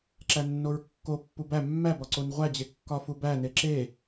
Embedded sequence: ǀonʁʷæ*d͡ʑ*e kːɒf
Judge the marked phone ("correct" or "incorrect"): correct